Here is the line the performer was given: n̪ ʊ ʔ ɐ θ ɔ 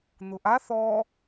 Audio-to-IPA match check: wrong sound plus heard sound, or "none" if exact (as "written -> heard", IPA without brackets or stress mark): ɐ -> a